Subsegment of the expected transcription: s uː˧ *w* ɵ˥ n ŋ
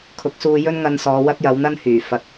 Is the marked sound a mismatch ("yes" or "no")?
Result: yes